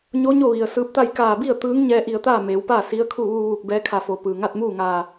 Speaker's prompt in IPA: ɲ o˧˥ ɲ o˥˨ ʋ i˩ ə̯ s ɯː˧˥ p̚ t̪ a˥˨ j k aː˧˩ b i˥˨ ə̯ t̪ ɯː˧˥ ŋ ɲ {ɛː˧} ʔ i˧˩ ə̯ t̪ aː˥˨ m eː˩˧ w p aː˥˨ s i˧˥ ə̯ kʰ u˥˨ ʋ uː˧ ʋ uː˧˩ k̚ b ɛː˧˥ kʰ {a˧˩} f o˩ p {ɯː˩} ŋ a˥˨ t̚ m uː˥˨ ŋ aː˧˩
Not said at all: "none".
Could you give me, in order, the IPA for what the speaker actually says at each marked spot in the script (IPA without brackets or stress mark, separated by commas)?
ɛː˧, a˧˩, ɯː˩